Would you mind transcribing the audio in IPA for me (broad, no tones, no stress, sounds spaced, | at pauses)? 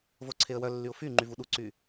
v o ǀʰ e ə̯ w œ lː y ʊ̯ f y ŋ͡ǃ y v u ɗ u ǀ y